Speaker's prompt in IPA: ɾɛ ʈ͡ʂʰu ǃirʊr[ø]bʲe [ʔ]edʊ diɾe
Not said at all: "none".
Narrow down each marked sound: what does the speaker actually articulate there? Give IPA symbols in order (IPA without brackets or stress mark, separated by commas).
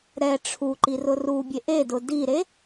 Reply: u, ʔ